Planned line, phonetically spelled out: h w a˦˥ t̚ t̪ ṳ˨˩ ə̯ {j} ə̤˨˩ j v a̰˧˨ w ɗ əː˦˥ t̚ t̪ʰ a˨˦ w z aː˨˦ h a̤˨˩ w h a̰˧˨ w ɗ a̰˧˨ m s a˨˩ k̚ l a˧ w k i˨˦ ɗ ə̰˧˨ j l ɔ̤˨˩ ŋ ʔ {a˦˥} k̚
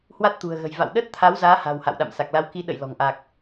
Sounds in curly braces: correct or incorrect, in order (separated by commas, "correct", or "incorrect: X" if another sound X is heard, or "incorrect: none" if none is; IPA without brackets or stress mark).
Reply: incorrect: ɣ, incorrect: a˨˩